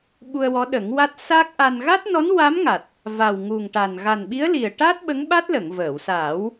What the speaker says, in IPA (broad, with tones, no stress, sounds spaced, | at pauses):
ɓ u˧ ə̯ w ɔ˧˥ ɗ ə˨˩˦ ŋ w a˦˥ t̚ s a˦˥ k̚ ʔ a˧ n ɣ a˦˥ t̚ n ɔ˧˥ n w a˧˥ m ŋ a˨˩ t̚ | v a˨˩ w ŋ u˨˩ ŋ ʈ a˨˩ n ɣ a˨˩ n ɓ i˧˥ ə̯ l i˨˩ ə̯ ʈ a˦˥ t̚ ɓ ə˧˥ ŋ ɓ a˦˥ t̚ l ə˨˩˨ ŋ v əː˨˩˨ w s aː˨˩˦ w